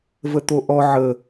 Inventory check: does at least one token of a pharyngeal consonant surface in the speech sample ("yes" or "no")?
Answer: yes